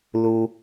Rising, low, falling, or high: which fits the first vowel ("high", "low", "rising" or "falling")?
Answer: low